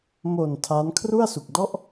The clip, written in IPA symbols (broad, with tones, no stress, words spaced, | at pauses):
mo˨˩n tʰa˦˥n kʰru˥˩a̯su˨˩k̚dɔ˥˩ʔ